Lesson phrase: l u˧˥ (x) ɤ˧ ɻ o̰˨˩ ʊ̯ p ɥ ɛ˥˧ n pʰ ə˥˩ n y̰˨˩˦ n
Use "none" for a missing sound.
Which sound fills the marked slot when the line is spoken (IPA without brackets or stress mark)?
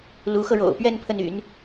x